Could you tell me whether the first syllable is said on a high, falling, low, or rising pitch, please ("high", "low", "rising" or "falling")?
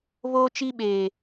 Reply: high